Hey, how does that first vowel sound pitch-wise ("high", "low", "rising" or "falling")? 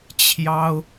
high